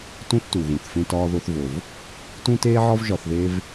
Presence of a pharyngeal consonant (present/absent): present